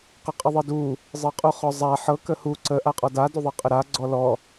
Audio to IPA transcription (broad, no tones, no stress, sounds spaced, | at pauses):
q ə qʼ ə ðˤ ɤ d u | zˤ ɤ qʼ u χ ɔ zˤ a ħ ɤ k ə h u ǀ ə ʔ a qʼ ɔ d a d u ðˤ ɤ qʼ ə ɾ a ɡ͡ǀ ɔ l ɔ